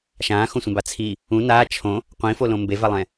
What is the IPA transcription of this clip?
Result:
ʃãːxõsʷɛ̃ba t͡sʰi | ũ naː t͡ʃʰõ | qʷĩfolõ mbevalˠɛ̃

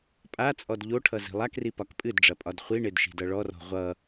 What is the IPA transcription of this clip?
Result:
pʼat͡sʼɔd ʎoʈʰʌ zi̤lˠakri pɒkpʼɨdɖ͡ʐɐ pʼɒdχʷiɳed ʃi̤dʌɭɔrɔ̤ ʁʷʌ

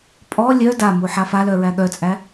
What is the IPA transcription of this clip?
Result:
pʼɔ lʲœ damu ħafalœ ɹæɠœt͡sʼæ

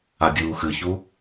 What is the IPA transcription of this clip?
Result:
adʲuːxɨçu

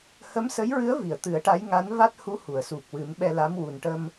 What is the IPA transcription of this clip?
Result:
hə˧˥msə˧˥jɹɨ˧˥ə̯ vi˨˩˨ə̯t̪ɨ˨˩˦ə̯ʈa˧˥j ŋa˧˥n va˦˥t̚hu˧˥ hu˨˩˨ə̯su˨˩k̚wɨ˨˩˦m ɓɛ˧la˧˥m wu˨˩nʈə˧m

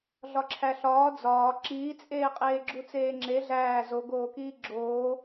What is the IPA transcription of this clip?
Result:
ɮɒǁʰæɬɒː d͡zɒː ǁiːt͡sʼeːqʼeː ɡ͡ǁut͡seːŋ͡ǁe ɮæː zoɡoːkiː ɡ͡ǁoː

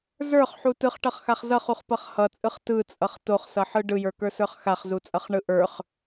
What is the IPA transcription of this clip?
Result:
zə˞χħu tɯχʈʌχxaχ zʌχuχpʌχ hʌt͡sʼɯχ tɯt͡sʼʌχ toχsʌħɯ ɖɯjə˞kə˞sə˞χ xaχzut͡sʼʌχɳɯ ʔə˞χ

